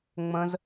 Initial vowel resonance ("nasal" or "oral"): nasal